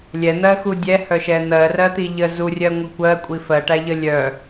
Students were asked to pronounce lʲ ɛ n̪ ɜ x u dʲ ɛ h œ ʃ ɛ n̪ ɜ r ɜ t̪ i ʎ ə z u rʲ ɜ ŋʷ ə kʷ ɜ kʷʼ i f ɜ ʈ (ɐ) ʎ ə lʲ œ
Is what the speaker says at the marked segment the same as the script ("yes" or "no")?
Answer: no